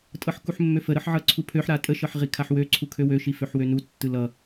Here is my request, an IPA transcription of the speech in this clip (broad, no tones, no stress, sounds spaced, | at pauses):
tʼ ɤ ħ k u ħ mː ø f ə ɾ ɤ ħ ʕ ɤ ǀʰ u pʰ ø ħ ɾ a tʼ ə ʃ ɤ ħ ʁ i kʰ a ħ w ø ǀʰ u kʰ ø w ø ʃ i f ø ħ w ø n u tː ɯ l ʌ